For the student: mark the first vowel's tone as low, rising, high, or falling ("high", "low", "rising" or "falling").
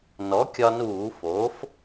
rising